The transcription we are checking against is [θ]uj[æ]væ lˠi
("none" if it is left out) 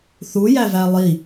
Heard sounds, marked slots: θ, æ

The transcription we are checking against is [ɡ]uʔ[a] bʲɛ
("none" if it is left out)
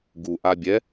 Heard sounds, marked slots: ɡ, a

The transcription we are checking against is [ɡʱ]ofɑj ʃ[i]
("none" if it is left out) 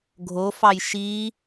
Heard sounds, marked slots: ɡʱ, i

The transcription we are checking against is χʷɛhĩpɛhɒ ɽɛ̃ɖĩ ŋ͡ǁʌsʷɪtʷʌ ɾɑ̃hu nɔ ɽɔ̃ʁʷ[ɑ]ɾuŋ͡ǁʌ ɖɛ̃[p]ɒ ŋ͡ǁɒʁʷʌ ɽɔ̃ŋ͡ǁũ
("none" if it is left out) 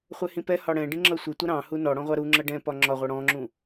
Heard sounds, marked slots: ɑ, p

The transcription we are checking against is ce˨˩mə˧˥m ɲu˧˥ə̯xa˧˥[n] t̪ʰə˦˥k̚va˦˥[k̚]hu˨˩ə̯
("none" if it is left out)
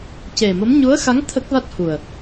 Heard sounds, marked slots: ŋ, t̚

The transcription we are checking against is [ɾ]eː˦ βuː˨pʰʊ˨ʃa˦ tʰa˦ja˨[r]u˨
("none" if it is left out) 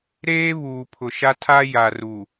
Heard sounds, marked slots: ɾ, r

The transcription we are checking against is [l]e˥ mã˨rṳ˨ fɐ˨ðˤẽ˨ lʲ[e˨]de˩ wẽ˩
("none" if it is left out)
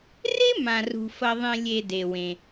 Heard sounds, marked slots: r, e˨

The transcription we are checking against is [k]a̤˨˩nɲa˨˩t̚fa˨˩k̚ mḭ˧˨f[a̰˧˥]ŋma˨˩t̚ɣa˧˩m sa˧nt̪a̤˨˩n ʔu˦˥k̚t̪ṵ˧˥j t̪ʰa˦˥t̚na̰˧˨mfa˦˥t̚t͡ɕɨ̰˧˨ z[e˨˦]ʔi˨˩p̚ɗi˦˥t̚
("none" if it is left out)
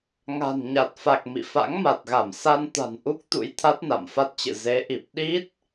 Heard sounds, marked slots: ŋ, a̰˧˥, e˨˦

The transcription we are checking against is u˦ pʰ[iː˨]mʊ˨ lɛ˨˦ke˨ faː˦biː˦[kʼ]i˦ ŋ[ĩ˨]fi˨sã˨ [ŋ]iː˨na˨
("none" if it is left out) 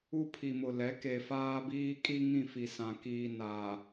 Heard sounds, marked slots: i˨, kʼ, ĩ˦˨, k

